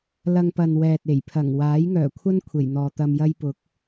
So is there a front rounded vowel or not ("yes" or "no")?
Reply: yes